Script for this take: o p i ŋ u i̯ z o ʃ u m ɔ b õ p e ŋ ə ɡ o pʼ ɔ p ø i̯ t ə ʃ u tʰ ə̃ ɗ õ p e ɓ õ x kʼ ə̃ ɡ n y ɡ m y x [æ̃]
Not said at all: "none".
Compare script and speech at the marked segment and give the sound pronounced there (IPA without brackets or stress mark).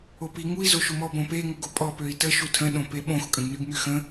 ə̃